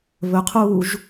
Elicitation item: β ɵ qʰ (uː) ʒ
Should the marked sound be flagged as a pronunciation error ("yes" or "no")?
no